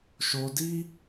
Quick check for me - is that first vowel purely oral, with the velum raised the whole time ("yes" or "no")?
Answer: yes